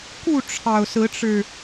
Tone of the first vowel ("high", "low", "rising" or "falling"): falling